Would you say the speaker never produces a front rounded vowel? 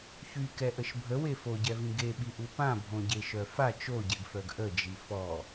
no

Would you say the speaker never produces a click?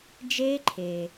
no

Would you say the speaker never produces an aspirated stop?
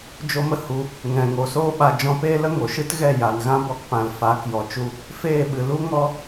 yes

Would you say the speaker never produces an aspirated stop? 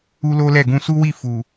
yes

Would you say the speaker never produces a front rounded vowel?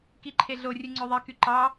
no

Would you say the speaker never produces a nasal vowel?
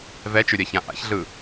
no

